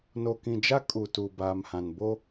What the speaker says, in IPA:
n o˨ k ĩ˨ d͡ʒ a˦ kʼ u˨ t u˨ b aː˨ m h ã˨ n b o˦

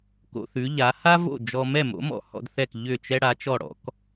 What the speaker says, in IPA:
k o̰˧ θ ʉ˩˥ ʎ a˩˥ h a˥ v o̰˥˩ d͡ʒ ɔ˧ m ɛ˥˩ m o̰˩˥ m ɔ̰˩˥ h ɔ̰˧ d θ ɛ˥˩ k ʎ ʏ˥˩ t͡ʃ ɛ˥ ɽ a˩˥ t͡ʃ ɔ˥˩ ɽ ɔ̰˥ k

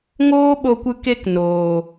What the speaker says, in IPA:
ŋ oː˦ ɓ o˧ kʷ ɨ˧ k e˧ k n oː˨

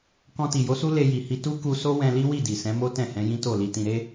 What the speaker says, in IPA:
k ɔ̃˧ t i˨ j o˨˦ s u˦ l e˧ j i˨ h i˧ t u˦ k u˧ s o˦ w ɛ̃˧ l i˦ w i˦˨ d i˨ s ɛ̃˨˦ m o˦ t ɛ̃˦˨ h ɛ̃˨˦ j ĩ˦ t o˦˨ l i˧ t ĩ˧ ɾ e˦

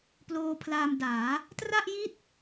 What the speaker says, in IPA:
p l oː˧ pʰ l aː˧ m d aː˩˦ | t r a˥˩ ʔ j i˥˩ t̚

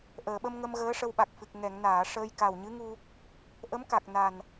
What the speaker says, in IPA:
ʔ əː˨˩˨ ɓ ə˧ m ŋ ə˧ m ɣ əː˧˥ ʂ ə˧ w ɓ a˨˩ k̚ f ɨ˨˩ k̚ ŋ ɛ˨˩˨ ŋ n aː˨˩˨ ʂ əː˧ j k a˨˩ w ɲ ɨ˧˥ ŋ u˧ | ʔ ə˧˥ m k a˨˩ k̚ n a˨˩ n

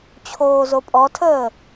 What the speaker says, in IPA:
t͡ɕʰ oː z o pʼ ɔ tʰ əː

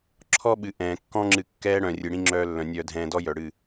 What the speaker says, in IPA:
ǁʰ ɔ˦ ɓ ɨ˨ ʔ ɛ̃ː˨ kː ɔ̃˦ ŋ͡ǁ ɨ˧ kː ɛː˦ ɽ œ̃˨ rʲ ɨ˨ ɽ ĩ˦ ŋ͡ǁ œː˧ lː œ̃˨ nʲ œː˧ dʱ ɛ̃ː˧ d ɔ˦ j œ˨ ɽ ɨ˦˨

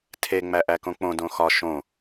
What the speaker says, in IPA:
tʰ e ŋ͡m æ ʔ æ k õ k͡p õ d õ x ɒ ʃ õ

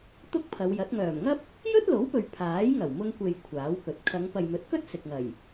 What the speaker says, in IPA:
t̪ ʊ˥ k̚ pʰ ɐ˨˧ w j ɐ˨˥ t̚ ŋ œː˨˩ m ŋ ɐ˥ p̚ | j ɵ˥ t̚ l o˨˥ w p ɵ˨ ɥ pʰ aː˨˥ j ŋ ɐ˨˩ w m ʊ˧ ŋ kʷ e˨ j kʷʰ aː˨˥ w k ɵ˨ t̚ kʰ ɐ˨˧ ŋ p ɐ˨ j m ɵ˨˥ t̚ k ɵ˥ t̚ s ɪ˨ k̚ ŋ ɐ˨˩ j

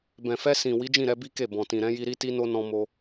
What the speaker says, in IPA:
b ɛ̃˨ f ɛ˧ s ĩ˨ w i˨˦ d͡ʒ ĩ˦˨ ɾ ɛ˧ b i˦ k e˦˨ b ɔ̃˨ t ĩ˨ ɾ ɛ̃˨˦ j i˧ ɾ i˦ t i˦ n o˦ n ɔ̃˧ m o˧

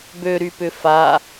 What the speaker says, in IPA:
b ø ɾ y p ʏ f a

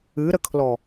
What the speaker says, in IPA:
ɨ ɾ ə kʰ l ɔ

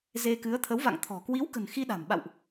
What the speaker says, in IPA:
z e˧ k ɨ˨˦ ə̯ t̪ʰ ə˨˦ w v a̰˧˨ ŋ t̪ʰ ɔ̤˨˩ k w i˨˦ w k ə̤˨˩ n x i˧ ɗ a̤˨˩ m ɓ a̰˧˨ w ʔ

